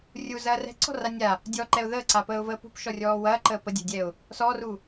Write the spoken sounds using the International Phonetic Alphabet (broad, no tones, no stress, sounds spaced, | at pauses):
rʲ u z ɐː r ɛ̤ ǀ ɔ̤ r a nʲ a | dʲ ɔ ǃ ɛ ʊ̯ ð əː ǀ a p əː ʊ̯ v əː p ṳ p ʃ ɔ rʲ ɔː w ɐː ǃ əː p ə dʲ ɛ̤ dʲ ɛ ʊ̯ | s ɔ r u